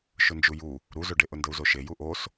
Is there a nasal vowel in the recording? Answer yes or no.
no